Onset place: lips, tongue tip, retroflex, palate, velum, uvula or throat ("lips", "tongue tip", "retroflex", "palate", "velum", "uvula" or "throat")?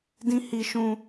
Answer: tongue tip